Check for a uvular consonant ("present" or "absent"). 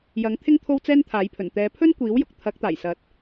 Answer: absent